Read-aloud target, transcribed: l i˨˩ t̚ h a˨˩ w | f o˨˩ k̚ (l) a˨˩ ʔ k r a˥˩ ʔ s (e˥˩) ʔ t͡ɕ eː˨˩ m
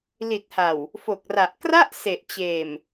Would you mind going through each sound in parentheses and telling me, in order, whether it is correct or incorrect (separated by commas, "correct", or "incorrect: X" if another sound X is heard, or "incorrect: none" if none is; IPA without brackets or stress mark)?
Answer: incorrect: r, incorrect: e˨˩